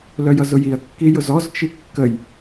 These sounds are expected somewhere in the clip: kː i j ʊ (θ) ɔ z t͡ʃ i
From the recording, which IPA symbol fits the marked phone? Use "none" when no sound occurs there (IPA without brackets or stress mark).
z